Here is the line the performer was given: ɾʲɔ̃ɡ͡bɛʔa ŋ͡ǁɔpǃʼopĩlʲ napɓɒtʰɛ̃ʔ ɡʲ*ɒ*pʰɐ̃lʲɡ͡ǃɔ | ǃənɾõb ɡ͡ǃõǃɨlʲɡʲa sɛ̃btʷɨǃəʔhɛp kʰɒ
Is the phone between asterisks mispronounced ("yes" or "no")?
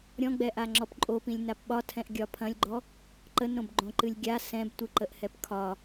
no